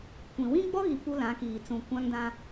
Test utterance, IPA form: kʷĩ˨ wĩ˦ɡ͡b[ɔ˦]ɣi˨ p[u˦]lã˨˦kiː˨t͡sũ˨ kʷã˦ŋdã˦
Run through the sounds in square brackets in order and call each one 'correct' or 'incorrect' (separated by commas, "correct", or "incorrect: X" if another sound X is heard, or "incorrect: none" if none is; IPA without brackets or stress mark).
correct, correct